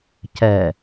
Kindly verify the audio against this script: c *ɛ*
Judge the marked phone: correct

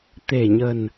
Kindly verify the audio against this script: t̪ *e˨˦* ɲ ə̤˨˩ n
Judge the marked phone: incorrect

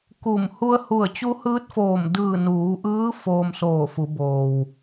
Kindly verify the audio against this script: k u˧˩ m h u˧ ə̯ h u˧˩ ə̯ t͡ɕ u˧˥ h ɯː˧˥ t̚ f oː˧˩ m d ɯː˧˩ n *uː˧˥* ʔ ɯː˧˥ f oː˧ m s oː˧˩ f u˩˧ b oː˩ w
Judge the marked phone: incorrect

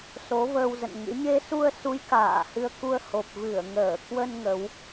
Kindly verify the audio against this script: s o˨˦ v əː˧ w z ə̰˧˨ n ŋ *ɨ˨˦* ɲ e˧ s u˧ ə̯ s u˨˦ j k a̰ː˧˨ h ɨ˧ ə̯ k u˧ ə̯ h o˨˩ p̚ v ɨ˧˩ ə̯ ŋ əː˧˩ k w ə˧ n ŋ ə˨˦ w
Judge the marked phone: incorrect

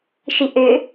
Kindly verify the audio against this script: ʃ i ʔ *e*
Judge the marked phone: incorrect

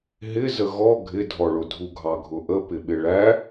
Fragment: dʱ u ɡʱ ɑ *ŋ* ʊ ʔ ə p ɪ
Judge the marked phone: incorrect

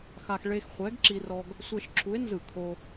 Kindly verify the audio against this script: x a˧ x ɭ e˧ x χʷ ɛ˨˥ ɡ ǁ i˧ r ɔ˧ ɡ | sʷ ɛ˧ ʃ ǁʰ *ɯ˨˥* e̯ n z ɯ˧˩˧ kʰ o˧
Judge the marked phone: incorrect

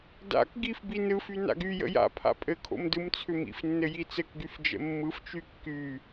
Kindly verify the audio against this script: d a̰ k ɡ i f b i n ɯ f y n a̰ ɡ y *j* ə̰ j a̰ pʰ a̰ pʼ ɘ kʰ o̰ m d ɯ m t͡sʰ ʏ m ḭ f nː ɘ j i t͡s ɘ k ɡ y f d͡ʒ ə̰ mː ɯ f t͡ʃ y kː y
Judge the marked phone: correct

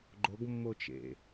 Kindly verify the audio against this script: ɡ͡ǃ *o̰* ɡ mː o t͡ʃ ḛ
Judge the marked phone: incorrect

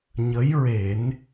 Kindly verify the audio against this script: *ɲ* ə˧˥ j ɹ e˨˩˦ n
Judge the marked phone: correct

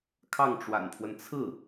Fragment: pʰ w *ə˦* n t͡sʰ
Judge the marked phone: correct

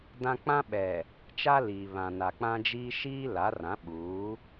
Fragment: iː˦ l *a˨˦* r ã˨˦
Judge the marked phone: correct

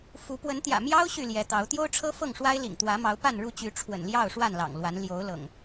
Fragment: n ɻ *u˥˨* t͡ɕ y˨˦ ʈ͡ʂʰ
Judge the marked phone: correct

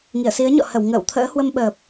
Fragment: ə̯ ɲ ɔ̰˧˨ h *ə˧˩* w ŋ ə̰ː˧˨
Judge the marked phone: correct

